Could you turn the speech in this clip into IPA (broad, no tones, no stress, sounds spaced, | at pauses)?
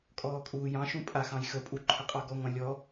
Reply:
kʼ ɔː kʼ uː j ɑ̃ ʃ ũ pʼ a x ɑ̃ j x ə pʼ u ǃʰ ə qʼ ɑ ɡ ɔ ŋʷ ã lʲ ɔ